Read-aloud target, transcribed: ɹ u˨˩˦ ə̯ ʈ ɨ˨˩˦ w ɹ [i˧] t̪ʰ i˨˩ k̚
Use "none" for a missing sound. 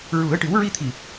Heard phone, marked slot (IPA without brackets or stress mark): i˧